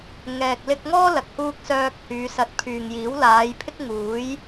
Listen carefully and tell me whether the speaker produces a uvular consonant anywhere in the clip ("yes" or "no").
no